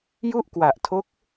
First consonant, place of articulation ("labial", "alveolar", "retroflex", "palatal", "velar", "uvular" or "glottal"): palatal